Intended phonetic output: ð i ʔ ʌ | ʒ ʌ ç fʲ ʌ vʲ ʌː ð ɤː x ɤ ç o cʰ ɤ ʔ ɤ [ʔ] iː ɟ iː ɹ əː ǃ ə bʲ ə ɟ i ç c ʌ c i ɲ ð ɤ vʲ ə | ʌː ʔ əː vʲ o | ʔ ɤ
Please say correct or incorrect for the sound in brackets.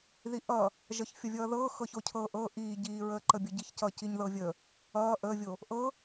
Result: correct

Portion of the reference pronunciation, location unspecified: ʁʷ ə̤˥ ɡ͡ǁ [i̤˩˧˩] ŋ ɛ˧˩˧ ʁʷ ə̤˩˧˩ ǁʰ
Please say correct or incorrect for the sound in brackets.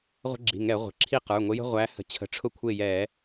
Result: correct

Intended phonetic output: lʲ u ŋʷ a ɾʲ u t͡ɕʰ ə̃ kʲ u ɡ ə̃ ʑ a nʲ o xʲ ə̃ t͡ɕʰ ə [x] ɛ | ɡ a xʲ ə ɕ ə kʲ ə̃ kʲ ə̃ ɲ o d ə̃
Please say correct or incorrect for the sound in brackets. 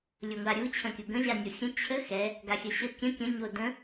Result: correct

